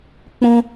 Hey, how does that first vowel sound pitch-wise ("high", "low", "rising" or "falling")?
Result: high